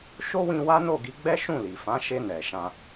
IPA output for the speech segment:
ʃ o˦ w ĩ˧ w a˦ n o˦˨ ɡ i˨˦ ɡ͡b ɛ˦ ʃ ũ˦˨ l i˨ f ã˨˦ ʃ e˧ n ɛ˨ ʃ ã˧

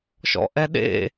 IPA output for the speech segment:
ʃ ɔ̰ ʔ ɛ ɗ ḛ

